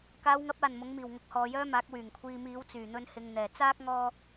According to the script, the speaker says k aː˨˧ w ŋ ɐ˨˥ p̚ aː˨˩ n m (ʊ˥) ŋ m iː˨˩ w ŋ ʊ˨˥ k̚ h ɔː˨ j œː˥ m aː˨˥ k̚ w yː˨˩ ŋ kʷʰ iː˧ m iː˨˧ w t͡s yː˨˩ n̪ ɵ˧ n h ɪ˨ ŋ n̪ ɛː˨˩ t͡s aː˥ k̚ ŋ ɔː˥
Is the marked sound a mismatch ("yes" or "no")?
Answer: yes